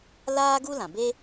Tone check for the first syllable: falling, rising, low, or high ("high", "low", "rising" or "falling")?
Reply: high